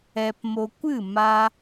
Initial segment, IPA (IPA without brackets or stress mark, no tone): ɛ